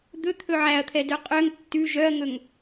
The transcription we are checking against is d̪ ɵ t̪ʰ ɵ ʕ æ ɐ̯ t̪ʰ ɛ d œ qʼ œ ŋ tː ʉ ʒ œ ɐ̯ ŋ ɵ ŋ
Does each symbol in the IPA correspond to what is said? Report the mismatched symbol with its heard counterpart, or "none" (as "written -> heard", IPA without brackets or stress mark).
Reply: none